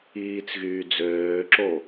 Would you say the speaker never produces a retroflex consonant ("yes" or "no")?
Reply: yes